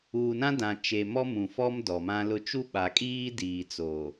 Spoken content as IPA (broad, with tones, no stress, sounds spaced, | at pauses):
uː˨ n ã˦ d ã˨ t͡ʃ e˨ m ɔ˦ m ũ˨ f ɔ˦ m d ɔ˨ m ã˦ l ʊ˦ t͡ʃ u˦ ɓ a˨ kʼ iː˦ d iː˨ t͡s oː˨